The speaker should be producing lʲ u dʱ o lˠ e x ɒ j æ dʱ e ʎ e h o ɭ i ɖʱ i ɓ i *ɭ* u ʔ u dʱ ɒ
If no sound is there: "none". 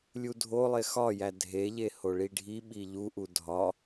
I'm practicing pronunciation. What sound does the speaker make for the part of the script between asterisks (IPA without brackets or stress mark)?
ʎ